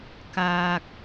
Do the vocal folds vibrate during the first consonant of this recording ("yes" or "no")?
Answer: no